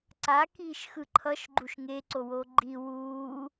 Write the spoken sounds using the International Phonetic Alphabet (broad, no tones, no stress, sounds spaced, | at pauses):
ǀ a k iː ʃ x ɯ ǃʰ ʌ ʃ ɡ͡ǃ u ʃ ŋ e ǀ o w oː ɡ͡ǃ i w uː